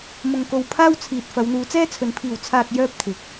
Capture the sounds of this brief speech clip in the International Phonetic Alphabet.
m ʊ˨ ŋ k o˨ w pʰ aː˥ w t͡sʰ iː˨ t̚ f ɐ˨˧ w n̪ uː˨˧ t͡s ɛː˥ t͡sʰ ɵ˨ n pʰ iː˨˩ w t͡sʰ aː˨ k̚ j œː˥ p̚ t̪ʰ ɪ˨˥ k̚

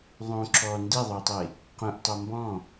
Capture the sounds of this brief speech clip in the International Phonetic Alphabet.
ðˤ ũ ǁ ɔ n d e ðˤ o tˤ e | q ũ ʔ tˤ o m b ɔ̃

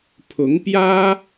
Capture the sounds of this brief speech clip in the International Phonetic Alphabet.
pʰ ʊ˧˥ ŋ p j ä˥

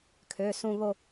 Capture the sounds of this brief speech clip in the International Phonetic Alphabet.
kʰ ø˩˧˩ s ũ˦˨ β o˦˨

